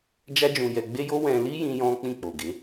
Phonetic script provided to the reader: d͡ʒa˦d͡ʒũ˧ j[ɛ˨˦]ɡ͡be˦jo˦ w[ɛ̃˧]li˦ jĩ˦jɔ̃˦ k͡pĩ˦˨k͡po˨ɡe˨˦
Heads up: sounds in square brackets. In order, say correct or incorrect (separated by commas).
incorrect, correct